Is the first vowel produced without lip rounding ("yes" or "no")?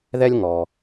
yes